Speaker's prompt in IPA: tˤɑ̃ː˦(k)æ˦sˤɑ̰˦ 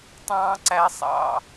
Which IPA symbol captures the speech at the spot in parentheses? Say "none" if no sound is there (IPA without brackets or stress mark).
ǀ